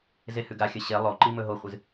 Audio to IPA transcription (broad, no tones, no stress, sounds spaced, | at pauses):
z e h ʉ ɡ a xʲ ɐ ɕ e lˠ o ǃ i m ɵ ɦ o χʷ ɨ z